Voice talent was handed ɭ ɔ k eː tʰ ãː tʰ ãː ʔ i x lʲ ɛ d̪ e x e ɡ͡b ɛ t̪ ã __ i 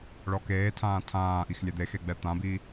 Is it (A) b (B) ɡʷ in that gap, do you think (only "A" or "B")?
A